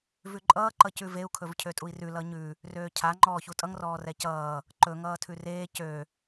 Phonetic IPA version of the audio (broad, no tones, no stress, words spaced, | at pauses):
vʉǃʼʌː ǃʌcʉveu̯ kʰɵvcʰøtʼui̯rʉ lʌɲʉ | røːcʰa ŋ͡ǃɔːçutʼʌŋ rɔːrɛcʌː | ǃɵ ŋʌːtʰʉreː cø